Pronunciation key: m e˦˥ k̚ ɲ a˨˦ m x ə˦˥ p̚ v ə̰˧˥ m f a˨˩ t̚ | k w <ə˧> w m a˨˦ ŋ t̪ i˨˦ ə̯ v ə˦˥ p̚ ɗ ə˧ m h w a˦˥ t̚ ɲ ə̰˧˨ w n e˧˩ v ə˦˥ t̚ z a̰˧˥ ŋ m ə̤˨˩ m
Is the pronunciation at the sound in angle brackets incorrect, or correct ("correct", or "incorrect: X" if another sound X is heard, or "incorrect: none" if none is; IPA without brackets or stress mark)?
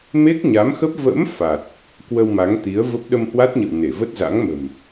correct